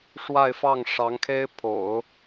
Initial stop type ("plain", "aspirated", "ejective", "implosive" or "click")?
aspirated